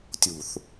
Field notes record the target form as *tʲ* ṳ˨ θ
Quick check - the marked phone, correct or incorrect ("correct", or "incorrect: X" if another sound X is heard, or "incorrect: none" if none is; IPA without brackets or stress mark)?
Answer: correct